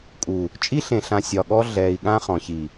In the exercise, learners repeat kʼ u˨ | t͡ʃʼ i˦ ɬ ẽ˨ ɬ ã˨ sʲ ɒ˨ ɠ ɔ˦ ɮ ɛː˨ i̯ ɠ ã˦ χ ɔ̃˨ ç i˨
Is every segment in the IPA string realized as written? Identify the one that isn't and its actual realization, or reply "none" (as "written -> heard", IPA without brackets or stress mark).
none